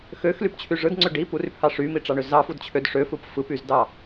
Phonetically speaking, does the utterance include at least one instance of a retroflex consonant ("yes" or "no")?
yes